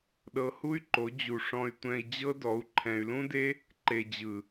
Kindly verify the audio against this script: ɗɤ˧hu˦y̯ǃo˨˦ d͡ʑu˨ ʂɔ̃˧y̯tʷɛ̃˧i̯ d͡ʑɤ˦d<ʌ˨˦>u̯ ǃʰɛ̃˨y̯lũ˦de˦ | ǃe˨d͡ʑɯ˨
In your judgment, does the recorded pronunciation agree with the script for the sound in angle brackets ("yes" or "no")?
no